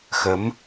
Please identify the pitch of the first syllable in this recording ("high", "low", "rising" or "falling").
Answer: rising